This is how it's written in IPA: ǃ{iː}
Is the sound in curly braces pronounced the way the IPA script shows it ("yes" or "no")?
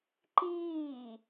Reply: yes